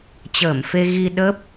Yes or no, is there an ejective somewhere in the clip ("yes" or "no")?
no